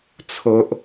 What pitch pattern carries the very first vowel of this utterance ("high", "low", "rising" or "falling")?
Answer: high